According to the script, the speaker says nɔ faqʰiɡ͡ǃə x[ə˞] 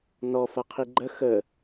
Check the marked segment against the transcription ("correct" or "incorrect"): incorrect